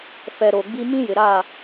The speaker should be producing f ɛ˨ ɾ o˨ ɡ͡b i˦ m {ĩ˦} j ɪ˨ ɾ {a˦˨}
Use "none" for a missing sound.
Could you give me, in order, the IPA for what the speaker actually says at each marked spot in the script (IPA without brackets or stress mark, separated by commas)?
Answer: ĩ˦, a˦˨